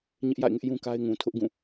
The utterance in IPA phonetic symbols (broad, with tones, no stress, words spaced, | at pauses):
ɲɪ˦ʔja̰˦˨ɪ̯ŋɪ˦ʔ jũ˦ka˦ɪ̯ŋũ˨ tʰʊ˦ʔɡũ˦˨